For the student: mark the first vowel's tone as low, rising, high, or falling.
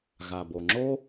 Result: low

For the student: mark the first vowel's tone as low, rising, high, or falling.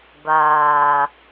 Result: low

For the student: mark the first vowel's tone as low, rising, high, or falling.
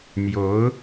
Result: rising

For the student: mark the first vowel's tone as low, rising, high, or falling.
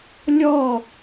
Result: falling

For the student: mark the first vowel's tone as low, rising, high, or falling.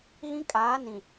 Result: high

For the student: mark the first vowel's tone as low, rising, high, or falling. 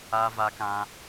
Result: high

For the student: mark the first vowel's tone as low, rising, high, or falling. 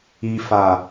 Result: low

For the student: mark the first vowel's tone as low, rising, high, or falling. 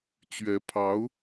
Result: rising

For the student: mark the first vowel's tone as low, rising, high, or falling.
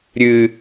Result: low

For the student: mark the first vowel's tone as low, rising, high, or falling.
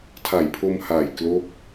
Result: low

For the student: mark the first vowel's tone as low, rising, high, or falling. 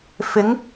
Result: rising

